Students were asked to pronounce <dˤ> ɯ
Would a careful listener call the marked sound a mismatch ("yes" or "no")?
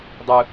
no